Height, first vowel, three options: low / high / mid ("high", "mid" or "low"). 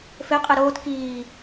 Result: mid